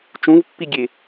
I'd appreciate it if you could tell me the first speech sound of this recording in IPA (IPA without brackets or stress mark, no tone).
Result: t͡ʃ